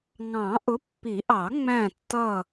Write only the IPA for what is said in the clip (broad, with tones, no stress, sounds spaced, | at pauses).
ŋ ɑ̃˨˩˦ ʔ ʊ˨˥ pː i˨˩˦ ʔ ɑ˨˩˦ ŋ͡m æ̃˦˨ tː ʌ˦˨